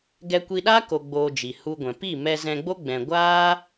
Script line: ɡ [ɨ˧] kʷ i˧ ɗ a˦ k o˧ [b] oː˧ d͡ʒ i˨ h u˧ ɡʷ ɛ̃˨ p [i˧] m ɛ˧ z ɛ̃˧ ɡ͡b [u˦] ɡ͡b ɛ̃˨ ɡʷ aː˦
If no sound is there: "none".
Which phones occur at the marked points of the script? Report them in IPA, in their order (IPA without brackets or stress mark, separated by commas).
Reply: ɛ˧, ɡ͡b, i˦˨, o˦